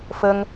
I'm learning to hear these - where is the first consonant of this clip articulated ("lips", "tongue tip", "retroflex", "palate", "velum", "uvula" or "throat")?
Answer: lips